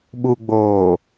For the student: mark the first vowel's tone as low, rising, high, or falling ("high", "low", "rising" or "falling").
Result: low